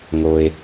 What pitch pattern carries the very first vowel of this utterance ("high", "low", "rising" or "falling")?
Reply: low